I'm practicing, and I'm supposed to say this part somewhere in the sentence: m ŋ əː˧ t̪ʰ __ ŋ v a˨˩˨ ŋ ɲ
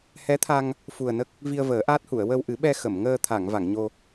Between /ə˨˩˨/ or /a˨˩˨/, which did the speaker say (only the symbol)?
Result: a˨˩˨